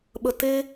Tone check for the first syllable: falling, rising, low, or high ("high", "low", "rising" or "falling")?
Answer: high